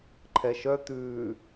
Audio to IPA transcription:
ǃʰ ɛ ʃ œ t̪ ʉː

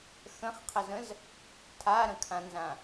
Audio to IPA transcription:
x ə̃ χ qʰ ə z ə̃ z | tʰ a ɾ ə̃ kʰ ã n z ã

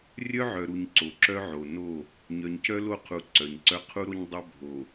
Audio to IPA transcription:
rʲ œ˦ ʕ œ˨ ɾ u˨ ɲ ǀ o˨ ǁ œ˦ ʕ o˨ n o˦˨ | ɲ œ˨ ɲ c œ˦ l o˦˨ qʰ u˨ ǀ œ˨ ɲ ǀ œ˦ qʰ u˦ ɾ o˦ ɲ dˤ œ˦ bʱ o˨

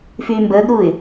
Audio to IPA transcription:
f yː m b əː ɡ ɾ uː ɪ̯

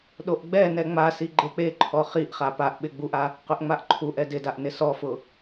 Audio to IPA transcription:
ɗ o ʔ ɡ͡b ɛ n ɛ ŋ͡m a s i ɡ͡ǃ e k͡p e ǃʰ ɔ χ i ʔ χ a p a ʔ ɓ ɪ ɡ͡b u ʔ a | q ʊ ʔ ŋ͡m a ʔ ǃʰ u ʔ ɛ d ɪ d a ʔ n ɪ s ɔ f ʊ

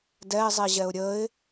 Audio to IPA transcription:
d ɛ ɪ̯ zˤ i ʑ ɛ ʊ̯ ɾʲ ə ɪ̯

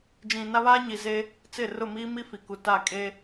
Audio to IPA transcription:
d͡ʒ ĩ˨ n a˦ β aː˦ ɲ i˨ z e˦ | t͡s ɪ˦˨ r ʊ˦˨ m iː˦ m i˦ f i˨ k u˨ t a˦˨ kʼ e˦

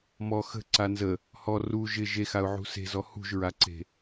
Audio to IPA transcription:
m ɔ x ə̤ ǀ a n z ə | h ɔ r u ʒ ɪ ʒ e x a ʊ̯ ʕ ṳ s e̤ z ɔ h ṳ ʒ ɹ a ǀ e̤

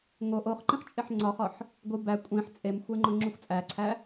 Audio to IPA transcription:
ŋ o ʔ o χ ǃ ĩ χ t͡ʃʼ e ħ ŋ͡ǀ ɒ χ ɒ ħ | ɡʷ i b æ kʷʼ ĩ ħ t͡sʼ e m xʷ e ŋ͡ǃ õ ŋ͡ǁ u xʷ t͡sʼ æ ǀʰ æ

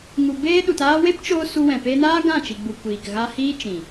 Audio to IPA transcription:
ŋ u˨ b eː˦ ɗ u˨ t aː˧ w e˦ p t͡ʃ oː˧ s u˧ w ɛ̃˨ p eː˧ n aː˦ ɡ ã˦˨ t͡ʃ i˨ ɡ͡b u˨ kʷ iː˨ k ɣ a˧ h iː˦ t͡ʃ ĩ˨

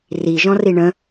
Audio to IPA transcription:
r i ʒ ɔ̃ r i ɳ ə̃

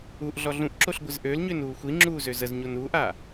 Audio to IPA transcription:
u ʔ ɮ ɔ ɮ ũ ʔ ǁ o ɬ ɡʷ ɪ z ʔ ø l ɲ ø n uː xʷ i ŋ͡ǁ uː z ø z ə z ɲ o n uː ʔ a

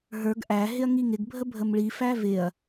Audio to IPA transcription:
ɦ ə˞ ɡ ʔ æ ɦ ɪ ɐ̯ ŋ i ŋ ɪ ɡ bʱ ə bʱ ə m ɭ i f æ v ɪ ɐ̯

